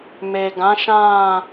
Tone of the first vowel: low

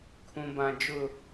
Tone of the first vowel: low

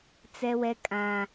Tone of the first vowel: high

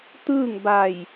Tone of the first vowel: falling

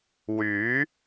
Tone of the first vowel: rising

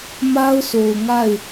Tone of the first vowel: high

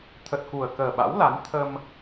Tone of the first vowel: low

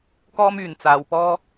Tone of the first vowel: high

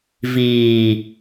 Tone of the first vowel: low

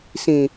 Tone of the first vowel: low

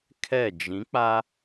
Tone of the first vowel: falling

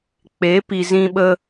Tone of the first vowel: rising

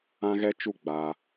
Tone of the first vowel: high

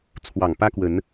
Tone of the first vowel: low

